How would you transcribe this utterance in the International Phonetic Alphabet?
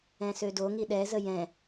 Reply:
ɛ̃ s ø d o ŋ i ɗ ɛ z ə j ɛ̃

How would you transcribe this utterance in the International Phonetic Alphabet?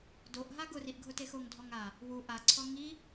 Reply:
d o ʔ ɦ a ɡ ʊ r i ʔ ɡʱ ʊ t e x o ŋ dʱ ɔ ŋ a | w u ʔ a ǀʰ ɔ ŋ i

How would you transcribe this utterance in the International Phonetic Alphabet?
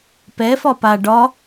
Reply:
p ɛ f ɒ p a ɖ ɒ

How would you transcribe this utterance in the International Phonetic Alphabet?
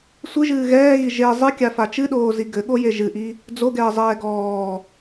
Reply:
sʷ ɨ ʒ ɨː ɣ ɛː ɣ i ʒ e zˤ ɨ kʲ a f a t͡ʃ ɨ ɗ oː z i ɡ ɘ ɠ o j e ʒ ɨ ʔ i | d͡z o ɡ ɛː zˤ ɛː ɡ ɔː

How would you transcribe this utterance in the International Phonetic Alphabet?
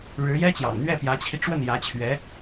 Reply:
ɻ ɻ̩˧˥ j ɛ˥ t͡ɕ j ɑ̰˨˩ ŋ n̪ ɥ ɛ˥˩ p j ä˧˥ t͡ɕʰ i˧ ʈ͡ʂ w ə˥˩ n j ä˧˥ t͡ɕʰ ɥ ɛ˧˥

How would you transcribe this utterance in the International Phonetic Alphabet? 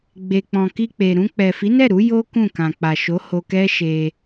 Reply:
ɡ͡b e˨ k͡p ɔ̃˨ k i˧ k͡p e˨ ɾ ũ˧ k͡p ɛ˨ f i˨˦ n ɛ˦˨ ɾ u˨˦ j o˦ k ũ˦˨ k ã˨ k͡p a˨ ʃ o˨˦ h o˧ k ɛ˦ ʃ e˧

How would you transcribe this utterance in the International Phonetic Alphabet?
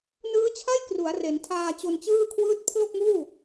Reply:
n ɯː˦˥ t͡ɕʰ a˥˩ j k r u˩˦ a̯ r e˩˦ n tʰ aː˧ t͡ɕ o˧ n t͡ɕ ɯː˥˩ kʰ w ɯː˥˩ t̚ pʰ l o˥˩ k̚ m uː˥˩

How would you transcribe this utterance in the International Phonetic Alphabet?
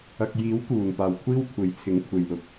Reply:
ɐ˨ k̚ j iː˨˥ w k uː˨˩ n p aː˨˩ w kʷʰ iː˥ w kʷʰ e˨˥ j t͡sʰ ɪ˨˥ ŋ kʷʰ e˨ j l ʊ˨˥ k̚

